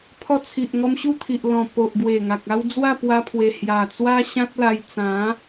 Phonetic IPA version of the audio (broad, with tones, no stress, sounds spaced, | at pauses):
pʰ ɔ˧ t͡sʰ i˨ ʔ ŋ ɔ˧ m ɕ u˥˧ t̪ʰ i˨ ʔ l ɔ̃˨˩ p o˨ ʔ ɡ w e˨˩ ŋ a˨ k̚ a˦ w d͡z w a˥˧ p w a˧ pʰ w e˨˩ h j a˨˩ t͡s w a˦ ɕ ã˦ t̚ l a˧ j t͡s ã˨˦